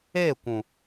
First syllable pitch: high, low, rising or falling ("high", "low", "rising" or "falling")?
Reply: falling